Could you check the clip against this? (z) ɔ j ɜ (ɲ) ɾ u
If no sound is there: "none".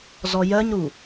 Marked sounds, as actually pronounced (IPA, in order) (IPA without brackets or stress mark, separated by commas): z, ɲ